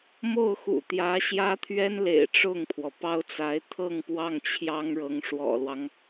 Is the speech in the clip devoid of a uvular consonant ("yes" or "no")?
yes